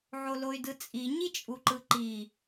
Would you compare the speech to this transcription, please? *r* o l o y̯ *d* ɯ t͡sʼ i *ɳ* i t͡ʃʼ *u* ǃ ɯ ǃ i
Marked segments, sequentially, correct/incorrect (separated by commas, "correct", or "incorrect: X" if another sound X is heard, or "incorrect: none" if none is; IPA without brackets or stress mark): incorrect: ʕ, correct, incorrect: ɲ, correct